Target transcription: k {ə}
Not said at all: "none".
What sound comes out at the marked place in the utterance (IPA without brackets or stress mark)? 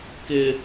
ɪ